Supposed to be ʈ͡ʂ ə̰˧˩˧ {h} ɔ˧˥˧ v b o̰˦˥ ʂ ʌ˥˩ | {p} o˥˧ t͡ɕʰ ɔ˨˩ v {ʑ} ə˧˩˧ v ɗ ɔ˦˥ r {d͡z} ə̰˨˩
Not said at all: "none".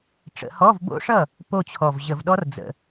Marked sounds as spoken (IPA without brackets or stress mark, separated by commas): h, p, ʑ, d͡z